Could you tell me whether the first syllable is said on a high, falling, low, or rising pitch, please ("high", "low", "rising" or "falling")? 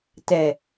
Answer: low